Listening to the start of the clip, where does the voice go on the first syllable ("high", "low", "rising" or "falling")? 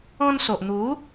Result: high